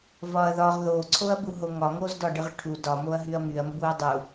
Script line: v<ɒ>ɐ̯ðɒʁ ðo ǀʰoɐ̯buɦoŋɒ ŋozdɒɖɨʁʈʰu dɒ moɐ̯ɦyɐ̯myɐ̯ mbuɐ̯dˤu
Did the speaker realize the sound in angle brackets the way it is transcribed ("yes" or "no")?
yes